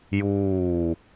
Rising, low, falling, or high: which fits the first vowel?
falling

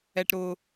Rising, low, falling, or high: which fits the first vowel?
low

